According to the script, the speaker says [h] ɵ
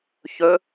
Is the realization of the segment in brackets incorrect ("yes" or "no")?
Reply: yes